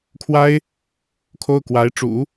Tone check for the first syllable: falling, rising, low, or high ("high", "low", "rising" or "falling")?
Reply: high